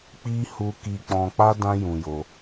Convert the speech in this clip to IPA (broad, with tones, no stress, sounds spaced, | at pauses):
k͡p i˦ h u˧ k i˧ k͡p ɔ̃˧ k͡p a˦ d ã˦ j ũ˧ j o˧